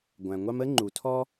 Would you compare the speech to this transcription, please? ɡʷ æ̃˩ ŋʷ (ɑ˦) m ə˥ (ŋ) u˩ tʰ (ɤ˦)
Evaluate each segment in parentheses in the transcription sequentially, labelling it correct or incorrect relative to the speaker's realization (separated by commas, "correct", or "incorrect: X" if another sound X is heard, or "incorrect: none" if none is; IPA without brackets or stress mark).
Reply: correct, incorrect: ŋ͡ǃ, incorrect: ɔ˦